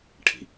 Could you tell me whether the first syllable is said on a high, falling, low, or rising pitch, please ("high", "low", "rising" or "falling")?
low